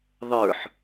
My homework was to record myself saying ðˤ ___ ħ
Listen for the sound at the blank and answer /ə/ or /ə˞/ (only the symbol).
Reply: ə˞